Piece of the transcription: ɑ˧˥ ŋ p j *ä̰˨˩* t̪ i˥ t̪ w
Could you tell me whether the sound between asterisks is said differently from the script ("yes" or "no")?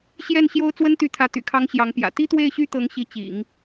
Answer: no